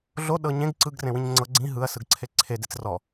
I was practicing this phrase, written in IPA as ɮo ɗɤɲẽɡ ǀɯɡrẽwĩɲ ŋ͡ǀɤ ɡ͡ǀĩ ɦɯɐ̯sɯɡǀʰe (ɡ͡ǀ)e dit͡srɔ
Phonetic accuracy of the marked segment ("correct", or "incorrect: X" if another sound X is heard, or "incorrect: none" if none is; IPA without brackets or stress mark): incorrect: ǀʰ